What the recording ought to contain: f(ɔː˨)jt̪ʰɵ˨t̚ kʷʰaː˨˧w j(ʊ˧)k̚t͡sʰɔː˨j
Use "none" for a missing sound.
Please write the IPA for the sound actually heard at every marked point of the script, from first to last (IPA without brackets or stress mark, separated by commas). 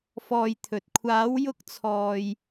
ɔː˨, ʊ˧